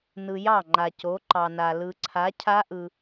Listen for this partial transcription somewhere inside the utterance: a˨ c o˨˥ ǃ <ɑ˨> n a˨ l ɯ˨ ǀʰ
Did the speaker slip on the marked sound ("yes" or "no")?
no